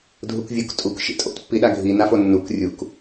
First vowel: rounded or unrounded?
rounded